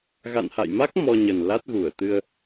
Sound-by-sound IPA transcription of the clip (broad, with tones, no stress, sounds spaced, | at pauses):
ɣ a̰˧˨ n h a̰˧˨ j m a˦˥ k̚ m ɔ˧ ɲ ə˨˩ n l a˦˥ t̚ ɣ u˧˩ ə̯ t̪ ɨ˧ ə̯